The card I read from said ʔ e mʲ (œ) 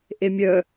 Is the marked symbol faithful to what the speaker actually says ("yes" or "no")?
yes